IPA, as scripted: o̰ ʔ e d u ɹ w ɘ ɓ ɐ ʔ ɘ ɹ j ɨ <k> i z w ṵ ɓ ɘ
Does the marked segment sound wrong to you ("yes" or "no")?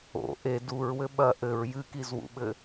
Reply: no